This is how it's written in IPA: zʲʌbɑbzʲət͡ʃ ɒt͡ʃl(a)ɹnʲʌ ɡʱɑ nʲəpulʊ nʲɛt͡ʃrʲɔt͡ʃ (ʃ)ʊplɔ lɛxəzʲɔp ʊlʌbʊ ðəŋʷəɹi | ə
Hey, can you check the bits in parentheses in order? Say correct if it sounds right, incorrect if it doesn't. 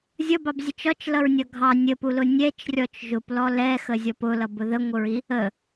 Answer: incorrect: ʌ, incorrect: ʒ

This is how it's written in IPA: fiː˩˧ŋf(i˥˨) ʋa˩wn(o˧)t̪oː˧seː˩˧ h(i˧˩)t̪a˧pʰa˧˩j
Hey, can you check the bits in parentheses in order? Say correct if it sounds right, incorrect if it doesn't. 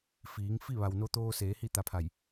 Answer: correct, correct, incorrect: i˥˨

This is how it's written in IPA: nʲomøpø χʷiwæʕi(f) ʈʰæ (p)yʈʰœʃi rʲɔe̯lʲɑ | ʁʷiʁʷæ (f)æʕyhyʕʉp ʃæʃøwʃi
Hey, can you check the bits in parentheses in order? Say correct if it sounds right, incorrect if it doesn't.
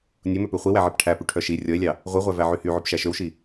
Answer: incorrect: p, correct, incorrect: v

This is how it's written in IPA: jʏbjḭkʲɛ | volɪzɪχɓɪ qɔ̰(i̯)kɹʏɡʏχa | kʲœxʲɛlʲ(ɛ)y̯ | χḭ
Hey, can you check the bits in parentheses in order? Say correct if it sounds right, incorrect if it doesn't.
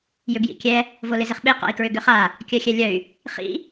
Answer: correct, incorrect: œ

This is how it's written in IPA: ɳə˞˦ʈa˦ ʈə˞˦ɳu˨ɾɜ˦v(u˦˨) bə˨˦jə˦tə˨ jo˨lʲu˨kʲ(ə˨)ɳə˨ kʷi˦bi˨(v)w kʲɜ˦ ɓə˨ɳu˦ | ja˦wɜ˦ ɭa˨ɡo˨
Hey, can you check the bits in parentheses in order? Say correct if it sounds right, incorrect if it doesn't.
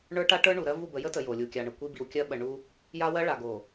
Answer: correct, incorrect: a˨, incorrect: none

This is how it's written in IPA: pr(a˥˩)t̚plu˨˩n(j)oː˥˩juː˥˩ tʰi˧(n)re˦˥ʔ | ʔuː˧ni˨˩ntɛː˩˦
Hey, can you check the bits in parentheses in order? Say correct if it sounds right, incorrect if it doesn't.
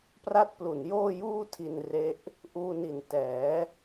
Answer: correct, correct, correct

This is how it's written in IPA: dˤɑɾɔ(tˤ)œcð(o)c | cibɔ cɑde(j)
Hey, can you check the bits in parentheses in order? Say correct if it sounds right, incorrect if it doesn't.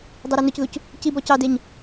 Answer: incorrect: n, incorrect: u, incorrect: ɲ

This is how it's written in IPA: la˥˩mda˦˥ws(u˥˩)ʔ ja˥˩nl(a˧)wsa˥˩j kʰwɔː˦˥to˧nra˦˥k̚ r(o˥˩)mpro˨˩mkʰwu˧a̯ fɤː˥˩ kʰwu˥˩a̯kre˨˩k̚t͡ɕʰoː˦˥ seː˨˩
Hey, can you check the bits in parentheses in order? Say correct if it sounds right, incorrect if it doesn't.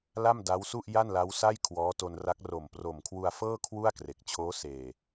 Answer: correct, incorrect: a˦˥, incorrect: o˨˩

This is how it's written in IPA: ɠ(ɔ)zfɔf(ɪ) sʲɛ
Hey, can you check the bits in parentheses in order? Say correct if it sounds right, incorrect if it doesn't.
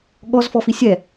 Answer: correct, incorrect: i

